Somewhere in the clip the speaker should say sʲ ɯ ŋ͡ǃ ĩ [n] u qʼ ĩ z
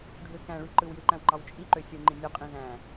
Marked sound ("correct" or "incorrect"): incorrect